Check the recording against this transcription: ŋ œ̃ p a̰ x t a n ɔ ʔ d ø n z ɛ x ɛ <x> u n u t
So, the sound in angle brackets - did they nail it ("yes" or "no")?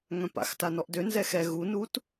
no